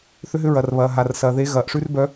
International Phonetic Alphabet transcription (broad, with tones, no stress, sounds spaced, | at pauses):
θ ʏ˨˦ ɦ ʏ˨˦ ɹ ɐ˩ r β ɐː˩ ɦ a˩ r s ɐː˩ ð e˨˦ ɣ ɐː˩ ʔ ʂ ʉ˦ r b œ˨˦